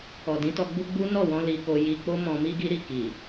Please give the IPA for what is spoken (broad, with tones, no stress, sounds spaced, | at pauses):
ɔ˨ d ĩ˨˦ t ɔ˧ ɡ͡b u˦ ɡ͡b u˦ n ɔ˦˨ w ɔ̃˧ l i˧ k o˧ j i˧ k͡p o˦ m ɔ̃˧ m i˦ ɡ i˦ ɾ i˦˨ k i˨